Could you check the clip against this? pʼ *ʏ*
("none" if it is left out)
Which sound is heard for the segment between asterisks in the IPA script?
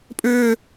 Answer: ʏː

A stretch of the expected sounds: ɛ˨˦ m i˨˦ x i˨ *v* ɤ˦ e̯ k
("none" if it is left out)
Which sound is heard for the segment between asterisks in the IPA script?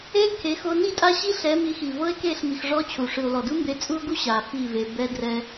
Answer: v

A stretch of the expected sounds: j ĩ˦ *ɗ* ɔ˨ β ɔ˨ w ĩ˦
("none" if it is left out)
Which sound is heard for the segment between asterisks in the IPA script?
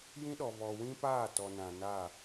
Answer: ɗ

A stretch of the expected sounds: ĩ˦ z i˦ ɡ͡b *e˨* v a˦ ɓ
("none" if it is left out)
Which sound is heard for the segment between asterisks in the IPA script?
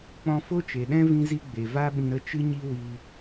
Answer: e˨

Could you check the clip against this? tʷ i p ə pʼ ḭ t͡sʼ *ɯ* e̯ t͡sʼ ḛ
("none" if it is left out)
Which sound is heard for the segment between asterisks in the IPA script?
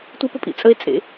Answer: ə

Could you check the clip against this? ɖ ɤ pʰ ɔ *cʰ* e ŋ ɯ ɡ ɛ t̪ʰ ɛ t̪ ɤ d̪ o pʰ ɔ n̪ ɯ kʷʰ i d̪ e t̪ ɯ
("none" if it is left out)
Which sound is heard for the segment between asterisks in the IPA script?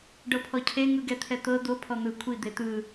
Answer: cʰ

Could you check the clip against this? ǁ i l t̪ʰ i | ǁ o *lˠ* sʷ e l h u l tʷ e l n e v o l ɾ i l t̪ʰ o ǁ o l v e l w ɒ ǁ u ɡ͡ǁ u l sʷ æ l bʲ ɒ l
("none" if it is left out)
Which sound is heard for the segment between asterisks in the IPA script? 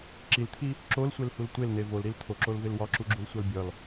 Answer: l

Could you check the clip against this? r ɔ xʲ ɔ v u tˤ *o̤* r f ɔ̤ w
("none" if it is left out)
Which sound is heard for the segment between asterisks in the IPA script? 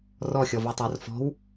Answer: o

